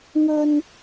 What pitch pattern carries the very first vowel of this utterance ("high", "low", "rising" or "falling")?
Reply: high